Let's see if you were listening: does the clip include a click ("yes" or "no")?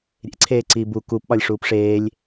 yes